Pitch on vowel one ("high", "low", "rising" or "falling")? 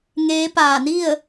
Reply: rising